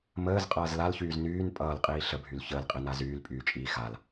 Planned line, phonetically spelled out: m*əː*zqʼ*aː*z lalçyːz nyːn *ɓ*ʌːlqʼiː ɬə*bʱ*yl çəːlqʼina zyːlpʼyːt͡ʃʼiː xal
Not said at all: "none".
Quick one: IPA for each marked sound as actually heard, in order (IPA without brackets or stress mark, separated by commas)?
əː, ʌː, pʼ, bʱ